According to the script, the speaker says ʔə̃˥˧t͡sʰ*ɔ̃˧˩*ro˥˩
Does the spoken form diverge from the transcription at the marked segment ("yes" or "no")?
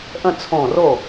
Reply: yes